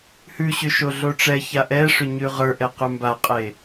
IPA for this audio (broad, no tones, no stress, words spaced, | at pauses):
hʉɕʏ ʃoɮoʈ͡ʂɛça ʔɛʂʏ ɲʉʁə˞ʔɛ qʉmbaqʼe